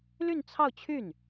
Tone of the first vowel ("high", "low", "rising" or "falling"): falling